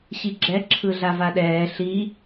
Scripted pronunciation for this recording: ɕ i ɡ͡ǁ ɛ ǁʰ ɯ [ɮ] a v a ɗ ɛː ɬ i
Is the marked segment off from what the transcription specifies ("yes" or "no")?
no